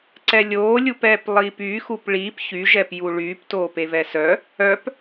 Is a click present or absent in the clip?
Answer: present